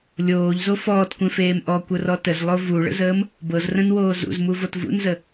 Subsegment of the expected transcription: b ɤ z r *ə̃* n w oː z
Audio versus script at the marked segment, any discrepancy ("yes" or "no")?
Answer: no